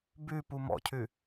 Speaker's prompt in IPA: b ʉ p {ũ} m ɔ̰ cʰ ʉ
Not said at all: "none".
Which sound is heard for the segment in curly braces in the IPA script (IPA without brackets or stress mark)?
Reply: u